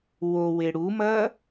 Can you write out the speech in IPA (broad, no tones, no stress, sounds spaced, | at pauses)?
w o w e ɽ u m ɐː